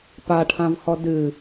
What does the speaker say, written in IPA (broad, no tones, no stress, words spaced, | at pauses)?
paʈʰãvhɔ dɨ